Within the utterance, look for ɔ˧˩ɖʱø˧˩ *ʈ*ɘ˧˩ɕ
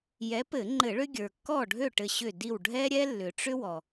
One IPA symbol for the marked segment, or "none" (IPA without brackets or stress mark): ʈ